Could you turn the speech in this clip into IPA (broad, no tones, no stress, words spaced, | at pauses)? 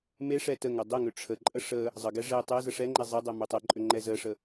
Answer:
meʂɛ təŋɛ dˤeŋʏ ʈ͡ʂʰəǃʼə ʂə | zˤəɡɛ ʐe tˤezə ʂɛŋ͡ǃɛ zˤedˤɛ mʏtˤeǃʼʏ ŋ͡ǃɛzəʂə